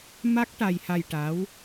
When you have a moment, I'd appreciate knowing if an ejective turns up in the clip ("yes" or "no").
no